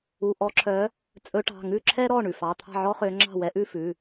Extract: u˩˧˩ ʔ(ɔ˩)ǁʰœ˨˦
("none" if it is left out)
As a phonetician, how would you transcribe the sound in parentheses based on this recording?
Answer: ɔ˨˦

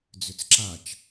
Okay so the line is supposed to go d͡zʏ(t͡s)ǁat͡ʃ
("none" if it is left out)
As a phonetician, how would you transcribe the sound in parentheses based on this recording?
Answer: t͡s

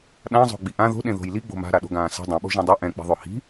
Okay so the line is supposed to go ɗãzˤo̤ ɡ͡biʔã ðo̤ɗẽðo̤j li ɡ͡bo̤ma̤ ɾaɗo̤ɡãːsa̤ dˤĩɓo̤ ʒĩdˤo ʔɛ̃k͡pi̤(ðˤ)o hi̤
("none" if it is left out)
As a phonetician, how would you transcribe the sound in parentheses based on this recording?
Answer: ðˤ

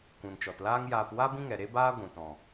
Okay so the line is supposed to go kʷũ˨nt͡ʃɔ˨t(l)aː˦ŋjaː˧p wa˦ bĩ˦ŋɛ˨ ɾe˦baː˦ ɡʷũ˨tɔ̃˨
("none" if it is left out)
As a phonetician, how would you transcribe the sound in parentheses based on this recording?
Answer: l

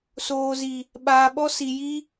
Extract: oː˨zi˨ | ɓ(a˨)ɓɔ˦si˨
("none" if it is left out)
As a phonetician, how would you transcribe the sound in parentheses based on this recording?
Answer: aː˨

